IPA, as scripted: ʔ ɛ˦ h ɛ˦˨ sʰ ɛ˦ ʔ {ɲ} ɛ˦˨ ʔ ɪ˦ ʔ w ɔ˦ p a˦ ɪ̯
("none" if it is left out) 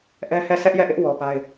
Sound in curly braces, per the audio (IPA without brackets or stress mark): j